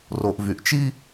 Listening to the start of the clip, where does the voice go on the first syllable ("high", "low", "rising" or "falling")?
low